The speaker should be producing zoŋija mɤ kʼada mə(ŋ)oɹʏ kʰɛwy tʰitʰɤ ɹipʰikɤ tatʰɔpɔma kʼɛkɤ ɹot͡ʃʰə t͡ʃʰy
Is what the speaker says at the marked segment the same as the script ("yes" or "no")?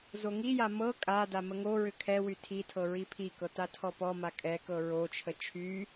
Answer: yes